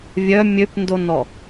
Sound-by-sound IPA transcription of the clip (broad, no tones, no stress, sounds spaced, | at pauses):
vʲ œ mʲ ø p n d o n ɔ